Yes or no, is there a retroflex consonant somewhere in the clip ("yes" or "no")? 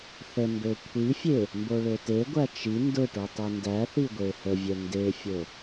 yes